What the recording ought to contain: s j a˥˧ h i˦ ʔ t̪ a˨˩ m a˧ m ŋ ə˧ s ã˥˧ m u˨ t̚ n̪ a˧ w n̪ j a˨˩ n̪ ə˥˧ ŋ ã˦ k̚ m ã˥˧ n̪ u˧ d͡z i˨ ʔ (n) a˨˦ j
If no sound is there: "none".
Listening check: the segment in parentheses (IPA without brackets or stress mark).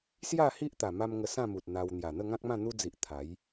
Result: t̪ʰ